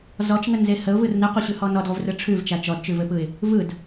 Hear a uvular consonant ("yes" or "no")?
yes